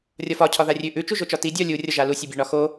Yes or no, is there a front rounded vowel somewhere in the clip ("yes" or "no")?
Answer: no